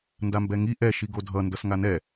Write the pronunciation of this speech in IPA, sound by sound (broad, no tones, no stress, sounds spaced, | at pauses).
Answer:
n d a m b ɛ ŋ i ʔ ɛ ʃ i ɡ o dʱ ʌ n d ʌ s ŋ a n ɛ